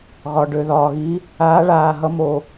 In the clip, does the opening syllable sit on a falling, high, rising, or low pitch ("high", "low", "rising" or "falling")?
low